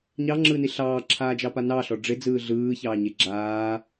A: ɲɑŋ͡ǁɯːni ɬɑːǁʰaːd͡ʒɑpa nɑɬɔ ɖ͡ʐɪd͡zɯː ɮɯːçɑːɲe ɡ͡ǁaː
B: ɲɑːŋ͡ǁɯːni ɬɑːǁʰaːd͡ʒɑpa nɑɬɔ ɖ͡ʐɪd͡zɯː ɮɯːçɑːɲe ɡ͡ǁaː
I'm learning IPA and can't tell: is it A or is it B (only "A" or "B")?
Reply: A